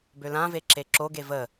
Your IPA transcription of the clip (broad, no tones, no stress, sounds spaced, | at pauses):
b ø l ã v e ǁ e ǁ o ɡ e v ə